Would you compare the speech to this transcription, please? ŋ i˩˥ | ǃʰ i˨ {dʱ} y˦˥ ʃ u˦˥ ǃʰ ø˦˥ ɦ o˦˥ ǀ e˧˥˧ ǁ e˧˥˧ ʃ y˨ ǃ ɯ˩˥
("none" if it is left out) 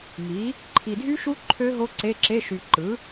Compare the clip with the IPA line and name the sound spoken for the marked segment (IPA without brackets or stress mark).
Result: dʱ